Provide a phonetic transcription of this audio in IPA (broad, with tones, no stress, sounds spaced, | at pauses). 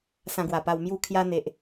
s ã˧ ɡ w a˨˩ p a˧ w m j u˥˧ kʰ j a˦ n̪ e˨ ʔ